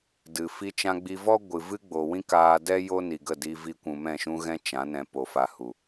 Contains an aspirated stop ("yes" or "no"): no